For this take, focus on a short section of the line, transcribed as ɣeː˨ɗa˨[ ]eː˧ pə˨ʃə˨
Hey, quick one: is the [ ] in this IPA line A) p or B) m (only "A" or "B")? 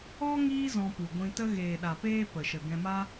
A